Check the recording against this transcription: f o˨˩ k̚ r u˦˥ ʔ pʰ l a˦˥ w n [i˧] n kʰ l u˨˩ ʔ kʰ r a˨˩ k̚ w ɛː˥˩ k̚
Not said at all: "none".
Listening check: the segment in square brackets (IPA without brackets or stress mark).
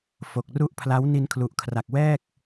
i˧